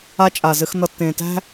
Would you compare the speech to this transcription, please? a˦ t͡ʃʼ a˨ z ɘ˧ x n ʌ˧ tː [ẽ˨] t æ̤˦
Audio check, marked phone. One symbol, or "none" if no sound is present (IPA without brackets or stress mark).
ẽ˨